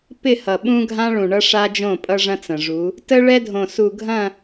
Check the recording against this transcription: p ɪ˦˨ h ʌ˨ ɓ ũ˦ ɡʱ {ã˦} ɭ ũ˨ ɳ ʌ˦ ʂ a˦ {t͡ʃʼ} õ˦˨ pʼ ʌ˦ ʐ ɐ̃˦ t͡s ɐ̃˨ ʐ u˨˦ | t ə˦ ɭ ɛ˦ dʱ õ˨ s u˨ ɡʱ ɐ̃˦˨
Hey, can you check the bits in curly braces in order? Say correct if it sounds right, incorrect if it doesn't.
correct, incorrect

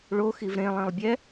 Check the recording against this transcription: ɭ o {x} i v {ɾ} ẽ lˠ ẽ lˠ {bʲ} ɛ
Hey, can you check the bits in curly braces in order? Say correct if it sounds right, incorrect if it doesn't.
correct, correct, correct

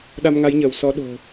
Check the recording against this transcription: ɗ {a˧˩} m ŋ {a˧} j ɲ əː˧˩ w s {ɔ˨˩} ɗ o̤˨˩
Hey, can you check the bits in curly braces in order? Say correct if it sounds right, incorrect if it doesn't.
incorrect, incorrect, incorrect

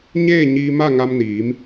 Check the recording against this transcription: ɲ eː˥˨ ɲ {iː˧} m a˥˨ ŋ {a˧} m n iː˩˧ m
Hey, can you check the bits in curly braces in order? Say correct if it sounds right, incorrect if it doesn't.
correct, correct

